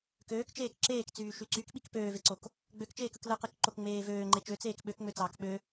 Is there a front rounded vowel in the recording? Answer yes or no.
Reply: yes